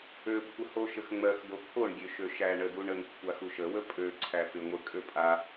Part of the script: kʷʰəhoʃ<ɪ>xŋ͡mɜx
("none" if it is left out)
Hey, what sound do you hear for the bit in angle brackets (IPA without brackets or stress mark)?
ə